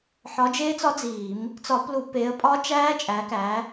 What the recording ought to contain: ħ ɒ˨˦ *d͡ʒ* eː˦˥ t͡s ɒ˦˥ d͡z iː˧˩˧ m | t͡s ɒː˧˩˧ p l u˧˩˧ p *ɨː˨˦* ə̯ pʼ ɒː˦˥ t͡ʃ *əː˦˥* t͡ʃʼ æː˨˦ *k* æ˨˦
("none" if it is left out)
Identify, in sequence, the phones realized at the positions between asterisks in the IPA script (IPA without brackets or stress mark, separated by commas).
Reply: d͡ʒ, eː˨˦, æː˦˥, k